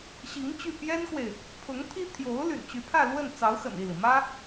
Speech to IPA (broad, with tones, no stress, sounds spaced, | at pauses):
ɕ i˧˥ ŋ t͡ɕ y˥˩ p j ɛ˥ n k w e˨ ɪ̯ | pʰ ʊ˧˥ ŋ t̪ʰ i˥ t̪ʰ j o˧˥ ʊ̯ l y̰˨˩ n t͡ɕ y˧˥ pʰ ä˥˧ l w ə˥˩ n t͡s ɑ˧˥ ʊ̯ x ə̰˨˩ n i˥˩ l i˩ m ä˥